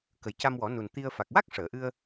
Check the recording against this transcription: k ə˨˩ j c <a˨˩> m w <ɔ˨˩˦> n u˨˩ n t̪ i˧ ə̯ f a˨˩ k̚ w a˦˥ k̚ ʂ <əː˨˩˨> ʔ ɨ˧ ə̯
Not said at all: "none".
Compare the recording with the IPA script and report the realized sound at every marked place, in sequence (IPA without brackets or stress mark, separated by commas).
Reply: a˧, ɔ˨˩˦, əː˨˩˨